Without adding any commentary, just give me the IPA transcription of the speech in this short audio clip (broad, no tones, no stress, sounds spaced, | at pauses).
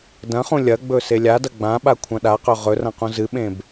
d ɐ̃ χ ũ lʲ ɐ ɡ͡b ɵ s e lʲ a d ɐ ɡ͡b ã ɓ a kʷʰ ɐ̃ ɗ a q ɵ ʁ ɵ r ɐ̃ q ũ z ɨ ɓ ẽ b